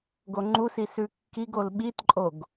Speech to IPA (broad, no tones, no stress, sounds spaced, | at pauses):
ɡ o ŋ͡ǃ u s i s ʉ kː i ɡ o l ɓ i t ǃʼ o ɡ